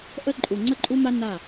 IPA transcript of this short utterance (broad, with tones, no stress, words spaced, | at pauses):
ʔə˦ ǃʼu˨ŋ͡ǀə˦ǃʼu˦ma˦ na˦˨